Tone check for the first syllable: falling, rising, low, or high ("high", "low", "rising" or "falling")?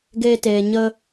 high